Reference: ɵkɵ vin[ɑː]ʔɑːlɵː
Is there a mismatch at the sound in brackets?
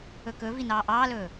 no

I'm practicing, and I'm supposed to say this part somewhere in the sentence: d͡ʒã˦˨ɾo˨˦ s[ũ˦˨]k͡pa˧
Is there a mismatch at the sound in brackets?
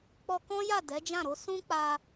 yes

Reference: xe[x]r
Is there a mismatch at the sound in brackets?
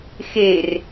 yes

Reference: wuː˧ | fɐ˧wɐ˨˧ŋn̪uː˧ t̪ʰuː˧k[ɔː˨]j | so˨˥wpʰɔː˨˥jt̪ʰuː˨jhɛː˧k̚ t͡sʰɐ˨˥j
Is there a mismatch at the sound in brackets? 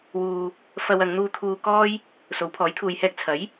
yes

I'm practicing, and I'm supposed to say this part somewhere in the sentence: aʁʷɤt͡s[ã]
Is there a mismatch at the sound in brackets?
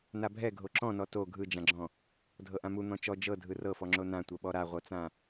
no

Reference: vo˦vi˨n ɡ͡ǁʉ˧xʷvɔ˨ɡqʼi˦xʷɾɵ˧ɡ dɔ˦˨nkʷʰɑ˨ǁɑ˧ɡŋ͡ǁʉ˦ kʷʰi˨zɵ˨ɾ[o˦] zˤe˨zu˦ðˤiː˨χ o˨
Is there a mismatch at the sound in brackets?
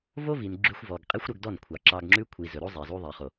no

